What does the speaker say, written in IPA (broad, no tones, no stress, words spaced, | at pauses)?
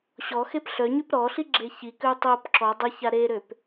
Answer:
ɕɔxep ɬœɲyp ɾɔɬi ɡ͡ǁeçikøu̯ tˤop ǁɔ dˤəça ɾeɾøp